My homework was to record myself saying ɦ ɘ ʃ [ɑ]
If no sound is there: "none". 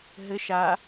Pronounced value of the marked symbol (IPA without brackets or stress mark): a